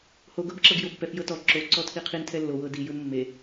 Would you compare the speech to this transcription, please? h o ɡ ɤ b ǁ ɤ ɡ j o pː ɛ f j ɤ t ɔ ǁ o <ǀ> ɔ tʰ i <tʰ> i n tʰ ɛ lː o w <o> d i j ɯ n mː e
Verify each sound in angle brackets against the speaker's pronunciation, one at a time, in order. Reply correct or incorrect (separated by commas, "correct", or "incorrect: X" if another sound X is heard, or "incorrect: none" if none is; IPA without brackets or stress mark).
correct, incorrect: qʰ, incorrect: ɤ